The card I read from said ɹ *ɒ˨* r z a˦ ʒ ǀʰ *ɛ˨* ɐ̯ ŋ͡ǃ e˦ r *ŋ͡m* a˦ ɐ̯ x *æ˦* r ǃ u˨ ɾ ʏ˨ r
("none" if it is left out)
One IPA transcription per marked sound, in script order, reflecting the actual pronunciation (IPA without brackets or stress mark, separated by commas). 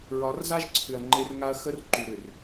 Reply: ɒ˨˦, ʏ˨, ŋ, ə˦